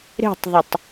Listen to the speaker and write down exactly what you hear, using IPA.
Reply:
ɾ e̤ tˤ ðˤ ə tˤ

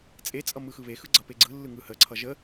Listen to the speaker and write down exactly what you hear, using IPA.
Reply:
t͡sʼ e t͡sʼ ʌ m ɯ x ɯ β e x ɯ ɡ͡ǀ ʌ p e ɡ͡ǀ ɯ lː ɯ ŋ ɯ h ə ǀʰ ʌ ʒ ə

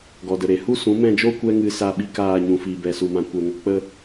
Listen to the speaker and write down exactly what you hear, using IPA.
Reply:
ɡ ɔ˨ d ə˨ ɾ e˨ h u˦ s ũ˨˦ m ɛ̃˦˨ d͡ʒ oː˦ kʷ ɛ˦ ŋ ɨ˧ s a˧ ɓ i˧ k aː˦˨ ɲ ũ˨ f iː˨ b ɛ˨ s u˨ m ã˨ kʷ ɛ˨ ŋ o˧ k͡p ə˧

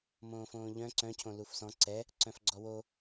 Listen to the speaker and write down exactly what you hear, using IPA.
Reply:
m õː f õː ʎ œ̃ ǀ œ̃ cʰ õ l u f s ɔ̃ ǀ ɛ | ǀ œ̃ f ɡ͡ǀ ɔ w o

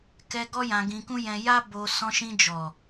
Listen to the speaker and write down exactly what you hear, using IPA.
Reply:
k ɛ˧ ɡ ɔ˦ j ã˧ ɡ ĩ˧ k ũ˦ j ɛ̃˧ j a˦ b o˧ s ɔ̃˧ ʃ ĩ˧ d͡ʒ ɔ˨

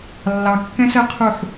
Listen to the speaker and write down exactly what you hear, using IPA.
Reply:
lː ɑ kː ɛ̃ s ɜ qʰ u ħ

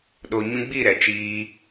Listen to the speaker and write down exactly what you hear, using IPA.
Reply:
ɗ o˨ ɲ ũ˧ ɡ͡b i˦˨ ɾ ɛ˨ t͡ʃ iː˦

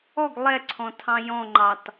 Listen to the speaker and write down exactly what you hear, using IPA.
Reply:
ɔ ɡ lˠ ɛ ǀʰ ɔ̃ tʰ ɑ̃ j ɔ̃ ŋ͡ǃ ɑ t

